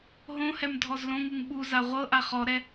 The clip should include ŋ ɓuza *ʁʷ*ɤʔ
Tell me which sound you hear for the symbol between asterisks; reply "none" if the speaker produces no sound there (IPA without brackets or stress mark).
ʁʷ